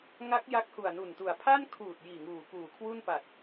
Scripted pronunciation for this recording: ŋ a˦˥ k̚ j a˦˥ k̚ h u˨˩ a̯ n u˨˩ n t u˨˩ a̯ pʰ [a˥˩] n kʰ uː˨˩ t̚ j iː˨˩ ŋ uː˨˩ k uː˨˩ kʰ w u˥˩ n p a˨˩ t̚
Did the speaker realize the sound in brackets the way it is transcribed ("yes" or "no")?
yes